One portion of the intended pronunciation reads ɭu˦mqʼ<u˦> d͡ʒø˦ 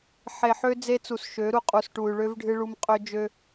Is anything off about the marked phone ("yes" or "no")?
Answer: yes